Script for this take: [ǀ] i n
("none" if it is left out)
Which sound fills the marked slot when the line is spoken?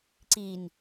ǀ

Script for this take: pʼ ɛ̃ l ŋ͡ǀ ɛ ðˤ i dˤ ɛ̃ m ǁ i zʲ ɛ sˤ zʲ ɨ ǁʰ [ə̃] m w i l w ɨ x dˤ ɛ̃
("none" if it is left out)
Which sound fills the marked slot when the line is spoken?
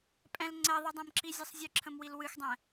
ə̃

